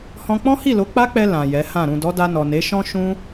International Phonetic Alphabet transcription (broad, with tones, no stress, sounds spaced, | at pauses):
h ɔ̃˧ k͡p ɔ̃˦ h i˦˨ l o˨˦ k͡p a˦ k͡p ɛ˧ l ã˨ j ɛ˨˦ h ã˦˨ ɾ ũ˨ d ɔ˨˦ d a˧ n ɔ˨ n e˨˦ ʃ ɔ̃˦ ʃ ũ˦